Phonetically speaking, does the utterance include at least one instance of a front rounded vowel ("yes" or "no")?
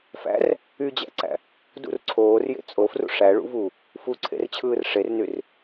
yes